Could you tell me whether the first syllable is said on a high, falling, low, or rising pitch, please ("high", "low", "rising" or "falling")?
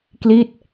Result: falling